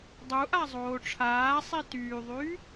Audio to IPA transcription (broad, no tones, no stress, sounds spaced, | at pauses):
dˤ u ʔ a zˤ oː ʈ͡ʂʰ aː sˤ i t yː ðˤ yː